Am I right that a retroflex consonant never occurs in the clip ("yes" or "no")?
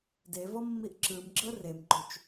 yes